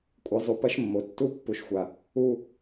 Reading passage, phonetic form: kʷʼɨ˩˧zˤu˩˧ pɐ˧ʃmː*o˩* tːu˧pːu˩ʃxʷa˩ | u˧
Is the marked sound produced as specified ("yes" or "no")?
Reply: yes